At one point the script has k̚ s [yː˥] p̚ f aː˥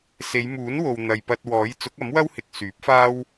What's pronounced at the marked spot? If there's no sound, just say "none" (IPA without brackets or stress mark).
yː˨˥